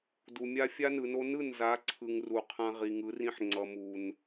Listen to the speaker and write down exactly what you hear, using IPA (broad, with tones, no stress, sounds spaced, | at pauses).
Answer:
d u˨ mʲ a˦ fʲ a˦ n ɯ˨ n o˦ n ɯ˦˨ n z a˨˦ ǀʰ ɯ˨ ŋ r u˨ qʰ ã˦ ʁ i˨ ŋ ɯ˨˦ r ĩ˦ ħ ŋ͡ǀ ʌ˨ m u˨ n